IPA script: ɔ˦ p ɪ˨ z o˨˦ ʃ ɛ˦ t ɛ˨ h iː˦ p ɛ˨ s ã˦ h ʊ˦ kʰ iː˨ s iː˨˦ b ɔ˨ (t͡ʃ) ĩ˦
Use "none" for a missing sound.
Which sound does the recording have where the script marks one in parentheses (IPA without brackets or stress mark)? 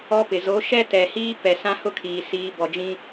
d͡ʒ